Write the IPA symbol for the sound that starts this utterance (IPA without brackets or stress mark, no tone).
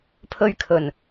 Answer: pʰ